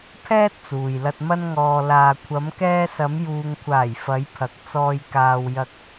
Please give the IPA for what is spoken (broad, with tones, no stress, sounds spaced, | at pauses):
pʰ ɛː˥ t̚ t͡s uː˨ j l ɐ˧ t̚ m ɐ˧ n ŋ ɔː˨ l aː˨ kʷʰ ɐ˨˧ m k ɛː˧ s ɐ˨˧ m j uː˨ ŋ kʷʰ aː˨˩ j f ɐ˨˧ j pʰ ɐ˨ k̚ t͡s ɔː˨ j k aː˨ w j ɐ˧ k̚